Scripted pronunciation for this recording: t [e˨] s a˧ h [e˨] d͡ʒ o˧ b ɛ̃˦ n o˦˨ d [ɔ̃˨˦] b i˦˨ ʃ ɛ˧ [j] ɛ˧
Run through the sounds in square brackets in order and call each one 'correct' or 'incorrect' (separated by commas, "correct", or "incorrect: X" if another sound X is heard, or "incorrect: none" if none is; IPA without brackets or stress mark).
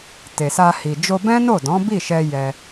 correct, incorrect: i˨, correct, correct